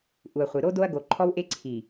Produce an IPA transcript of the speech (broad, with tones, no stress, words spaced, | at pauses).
ʔu˨ɐ̯χʷɨ˨ ɾo˦ do˦ɐ̯ɡo˨ǃʰɔ˦wʔe˦ ǀʰi˨